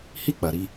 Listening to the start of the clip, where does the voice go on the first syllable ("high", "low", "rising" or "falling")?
high